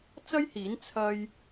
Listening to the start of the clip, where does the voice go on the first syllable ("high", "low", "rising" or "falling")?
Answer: high